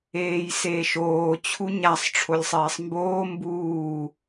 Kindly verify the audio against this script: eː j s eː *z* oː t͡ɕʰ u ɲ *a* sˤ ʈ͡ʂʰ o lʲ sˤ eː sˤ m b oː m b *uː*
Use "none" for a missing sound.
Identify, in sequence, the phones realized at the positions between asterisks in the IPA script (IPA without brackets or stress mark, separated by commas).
ʃ, a, uː